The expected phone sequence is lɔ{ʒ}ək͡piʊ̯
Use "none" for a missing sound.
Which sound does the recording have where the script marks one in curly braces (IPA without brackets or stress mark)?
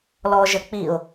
ʒ